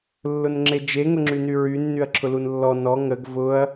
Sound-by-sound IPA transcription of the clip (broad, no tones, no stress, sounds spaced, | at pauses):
lː ʊ n ŋ͡ǁ e d͡ʒ e ŋ ʊ ŋ͡ǁ y n y ɹ y nː y ɐ̯ ǁʰ ʊ l u n lː ɔ n ɔ ŋ ə ɡ v ʊ ɐ̯